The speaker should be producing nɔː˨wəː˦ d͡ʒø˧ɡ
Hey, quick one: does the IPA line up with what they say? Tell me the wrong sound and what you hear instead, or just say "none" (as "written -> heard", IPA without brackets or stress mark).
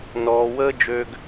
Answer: none